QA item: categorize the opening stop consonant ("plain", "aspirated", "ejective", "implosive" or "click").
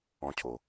aspirated